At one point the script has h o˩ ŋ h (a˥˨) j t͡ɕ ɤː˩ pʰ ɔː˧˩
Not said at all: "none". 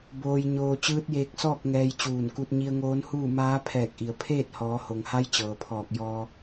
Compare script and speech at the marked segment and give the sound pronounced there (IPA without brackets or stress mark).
a˧˥